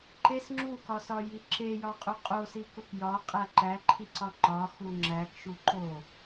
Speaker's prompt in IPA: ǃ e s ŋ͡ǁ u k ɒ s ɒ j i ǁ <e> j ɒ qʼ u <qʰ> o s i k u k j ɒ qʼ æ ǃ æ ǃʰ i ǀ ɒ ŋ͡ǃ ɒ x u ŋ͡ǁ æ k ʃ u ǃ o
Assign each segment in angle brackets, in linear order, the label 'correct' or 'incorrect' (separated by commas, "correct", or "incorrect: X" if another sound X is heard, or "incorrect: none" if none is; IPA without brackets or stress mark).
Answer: correct, incorrect: qʼ